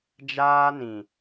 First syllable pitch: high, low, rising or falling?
high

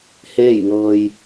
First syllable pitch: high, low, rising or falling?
falling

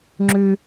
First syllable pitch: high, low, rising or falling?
low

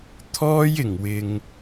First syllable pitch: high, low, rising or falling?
high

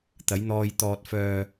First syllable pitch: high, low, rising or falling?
rising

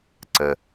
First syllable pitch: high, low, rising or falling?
low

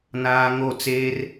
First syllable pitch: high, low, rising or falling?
high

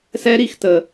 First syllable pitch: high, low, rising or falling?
high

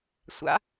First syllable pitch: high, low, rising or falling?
rising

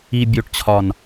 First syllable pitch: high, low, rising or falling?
low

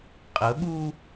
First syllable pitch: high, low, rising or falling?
rising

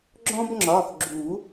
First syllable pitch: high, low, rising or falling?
high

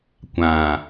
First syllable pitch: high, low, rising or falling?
low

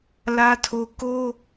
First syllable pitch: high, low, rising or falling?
high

